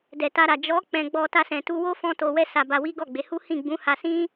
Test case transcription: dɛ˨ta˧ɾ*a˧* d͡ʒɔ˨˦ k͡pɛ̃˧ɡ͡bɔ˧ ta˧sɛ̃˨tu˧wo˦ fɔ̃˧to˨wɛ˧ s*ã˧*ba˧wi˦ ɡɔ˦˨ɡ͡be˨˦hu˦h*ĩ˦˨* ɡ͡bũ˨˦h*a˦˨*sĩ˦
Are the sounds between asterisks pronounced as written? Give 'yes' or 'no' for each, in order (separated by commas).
no, no, yes, no